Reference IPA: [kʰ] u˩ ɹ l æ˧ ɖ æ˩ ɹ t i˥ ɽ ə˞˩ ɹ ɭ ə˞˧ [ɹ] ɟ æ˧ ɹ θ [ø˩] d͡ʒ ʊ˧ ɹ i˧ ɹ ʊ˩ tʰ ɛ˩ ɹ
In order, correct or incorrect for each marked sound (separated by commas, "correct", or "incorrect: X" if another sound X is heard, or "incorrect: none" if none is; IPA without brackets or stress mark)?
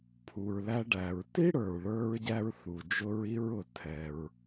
incorrect: pʰ, correct, incorrect: u˩